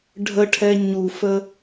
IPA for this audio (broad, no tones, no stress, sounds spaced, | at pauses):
ɖʱ ə ʈʰ ɛ ɲ u f ə